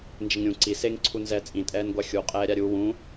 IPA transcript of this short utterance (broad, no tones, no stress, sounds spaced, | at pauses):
n d͡ʒ ɪ ŋ ɾʲ ũ ǀ i s e ŋ ǀʰ u n z ɛ t͡sʼ ĩ tʼ ɛː n ɡʷ a xʲ u qʼ ɛː ɾʲ a ɾʲ u w ũ